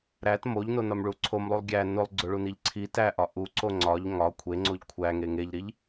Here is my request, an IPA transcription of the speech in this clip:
ɾ æ t m o ʎ n o n ɒ m ɭ u ǀʰ o m lˠ u lˠ ɡʲ æ n o lˠ ɡ͡ǀ o ɭ u n i ʎ ǀʰ i t æ ʔ ɒ ʔ u ǀ o ŋ͡ǀ ɒ ʎ ŋ ɒ kʷʰ e ŋ͡ǀ o ʎ kʷʰ æ ŋ e ŋ e ʎ ɾ i ʎ

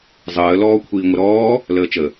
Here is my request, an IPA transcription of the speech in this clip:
zˤ əː l ɔː kʷʰ iː ŋʷ ə ɾ ɔː | l əː t͡ʃ ə

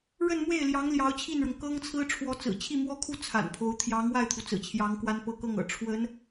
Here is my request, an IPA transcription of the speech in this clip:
ɻ ə˥˧ n m w e˥˩ ɪ̯ l j ɑ˧˥ ŋ l j ɑ˧˥ ʊ̯ t͡ɕʰ i˥˩ n ɻ ʊ˩ ŋ k ɤ˥ ŋ t͡sʰ ɹ̩˥ ʈ͡ʂʰ w ɔ˧˥ t͡s ɹ̩˨˩ t͡ɕʰ i˥˩ m w ɔ˥ kʰ u˥˩ t͡sʰ a̰˨˩ n pʰ o˧˥ ʊ̯ t̪ʰ j ɑ˧˥ ŋ w a˥˩ ɪ̯ t̪ʰ u˩ t͡s ɹ̩˨˩ t͡ɕʰ j ɑ˧˥ ŋ k w a˥ n p ɤ˥ k ɤ˥˩ ŋ ɤ̰˨˩ ʈ͡ʂʰ w ə˧˥ n

